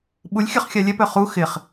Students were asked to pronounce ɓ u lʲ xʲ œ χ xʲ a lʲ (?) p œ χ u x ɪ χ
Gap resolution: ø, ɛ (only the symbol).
ɛ